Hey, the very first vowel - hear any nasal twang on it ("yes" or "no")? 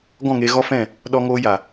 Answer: yes